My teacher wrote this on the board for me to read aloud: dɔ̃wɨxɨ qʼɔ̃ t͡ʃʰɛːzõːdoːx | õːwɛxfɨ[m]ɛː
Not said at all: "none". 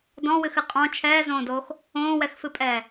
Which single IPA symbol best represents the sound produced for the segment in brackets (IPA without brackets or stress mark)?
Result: pʼ